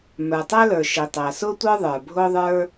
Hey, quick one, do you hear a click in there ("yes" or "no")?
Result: no